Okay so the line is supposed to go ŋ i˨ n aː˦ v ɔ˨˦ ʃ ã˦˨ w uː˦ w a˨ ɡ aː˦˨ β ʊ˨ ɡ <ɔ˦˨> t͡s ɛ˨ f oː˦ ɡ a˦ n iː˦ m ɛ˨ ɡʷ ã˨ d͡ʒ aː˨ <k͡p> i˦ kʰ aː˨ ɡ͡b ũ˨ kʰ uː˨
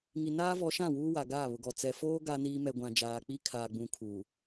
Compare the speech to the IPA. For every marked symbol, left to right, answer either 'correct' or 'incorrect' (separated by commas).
incorrect, correct